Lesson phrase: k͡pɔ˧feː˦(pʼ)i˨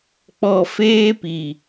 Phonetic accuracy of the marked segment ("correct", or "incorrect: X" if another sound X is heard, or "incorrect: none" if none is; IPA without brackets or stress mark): incorrect: p